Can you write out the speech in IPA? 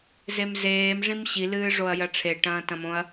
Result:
z e m z eː m ʐ ĩ m ɕ i l ɨː ʐ o ɐ̯ j ɐ ʈ͡ʂʰ e ʈ ɐ̃ː t ɐ̃ m õ ɐ̯

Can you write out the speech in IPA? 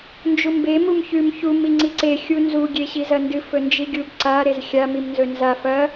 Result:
n d͡ʒ u m b e m u m ç ʉ m ç u m i ŋ͡ǀ i ǀ e xʲ u n z u ɡʲ e ɕ i z ɐ n d ɨ f ɵ n d͡ʒ i ɡʲ u b ǀ a ɾ e z xʲ a m i m n z ɵ n z a f ɐ

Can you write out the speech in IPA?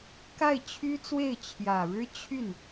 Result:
k a˥˩ ɪ̯ t͡ɕʰ y˥ t͡s w e˥˩ ɪ̯ t͡ɕʰ j ä˨˩ ɻ ɻ̩˥ t͡ɕʰ y˥˩ n

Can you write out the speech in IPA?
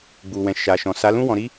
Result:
ɡ͡b u˨ w ɛ̃˨ ʃ a˨ ʃ ɔ̃˨ s a˨˦ l ũ˦ w ɔ̃˧ ɾ i˦

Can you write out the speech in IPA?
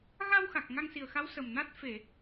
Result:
ɣ a˧ w x a˨˩ k̚ ŋ a˧ ŋ s i˨˩ ə̯ x a˧˥ w s ə˨˩ m n a˦˥ t̚ f e˨˩˨

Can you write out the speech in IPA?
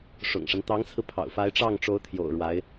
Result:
ʂ ʊ̰˨˩ ŋ ʂ a˦ n t̪ ɑ˧˥ ŋ t͡sʰ ɹ̩˧ pʰ ɑ̰˨˩ ʊ̯ f a˧˥ ɪ̯ ʈ͡ʂ ɑ˥˩ ŋ ʈ͡ʂ o˧˥ ʊ̯ t̪ʰ j o̰˨˩ ʊ̯ ɻ w a˧˥ ɪ̯

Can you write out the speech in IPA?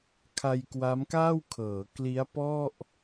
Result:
kʰ a˧ j k w a˦˥ m k aː˥˩ w kʰ ɤː˩˦ k l i˦˥ a̯ p ɔ˥˩ ʔ

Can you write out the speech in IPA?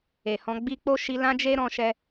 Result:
e˨ h ɔ̃˧ ɡ͡b i˧ k͡p o˦ ʃ i˧ l ã˦ d͡ʒ e˦ ɾ ɔ̃˧ ʃ ɛ˧

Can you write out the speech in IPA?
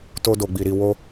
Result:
t o˧ d o˨ ɡ͡b i˨ ɾ i˨ w o˧

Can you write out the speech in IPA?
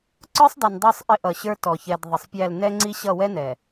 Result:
ǀ ə˞˦ sˤ dˤ i˨ n dˤ ɛ˦˨ sˤ ʔ ɪ˦ ʔ ʌ˨ ɕ ə˞˦ t ɔ˨ ç ɛ˨ d ðˤ ɪ˨ sˤ pʲ æ˦˨ l n ɛ˦ ŋ͡ǀ i˦ ɕ ʌ˦˨ w ɛ˦ n ɛ˨

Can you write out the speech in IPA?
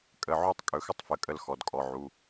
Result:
kʼ ə˩˧˩ ʕ u˥˧ tˤ kʼ ɵ˩˧˩ x ə˥˧ tˤ f ə˩˧˩ kʼ ə˥˧ l x ɔ˩˧˩ d kʼ ɔ˩˧˩ ʕ u˩˧˩

